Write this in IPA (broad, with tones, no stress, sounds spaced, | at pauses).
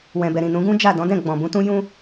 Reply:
w ɛ̃˨ b ɛ˨ ɾ ĩ˨ n ũ˨˦ ɡ ũ˦ d͡ʒ a˦˨ d ɔ̃˨˦ d ɛ̃˦˨ ɡ͡b ɔ̃˨ b ũ˧ t ũ˦ j ũ˦